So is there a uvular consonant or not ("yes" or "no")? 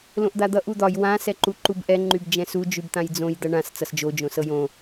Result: no